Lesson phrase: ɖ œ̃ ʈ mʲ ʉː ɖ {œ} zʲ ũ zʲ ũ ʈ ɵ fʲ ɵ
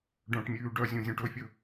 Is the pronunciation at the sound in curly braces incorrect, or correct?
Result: correct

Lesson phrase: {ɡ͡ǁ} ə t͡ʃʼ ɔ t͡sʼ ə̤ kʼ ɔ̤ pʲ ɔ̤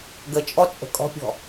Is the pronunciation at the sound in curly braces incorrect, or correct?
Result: incorrect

